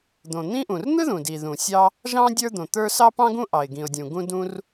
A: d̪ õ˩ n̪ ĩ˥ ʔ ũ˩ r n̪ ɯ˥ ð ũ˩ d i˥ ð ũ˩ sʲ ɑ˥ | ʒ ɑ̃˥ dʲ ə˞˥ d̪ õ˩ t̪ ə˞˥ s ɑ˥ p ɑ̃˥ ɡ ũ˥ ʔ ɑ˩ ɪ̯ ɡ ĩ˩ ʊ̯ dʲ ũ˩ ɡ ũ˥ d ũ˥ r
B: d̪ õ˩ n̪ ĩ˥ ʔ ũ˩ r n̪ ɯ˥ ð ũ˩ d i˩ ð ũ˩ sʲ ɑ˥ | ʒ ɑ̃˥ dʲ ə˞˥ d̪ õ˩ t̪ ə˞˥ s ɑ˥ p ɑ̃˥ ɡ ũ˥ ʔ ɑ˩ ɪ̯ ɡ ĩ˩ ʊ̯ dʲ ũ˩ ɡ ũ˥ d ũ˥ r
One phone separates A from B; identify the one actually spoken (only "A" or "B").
B